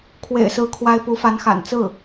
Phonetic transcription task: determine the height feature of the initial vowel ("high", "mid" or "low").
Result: mid